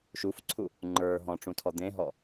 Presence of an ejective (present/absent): absent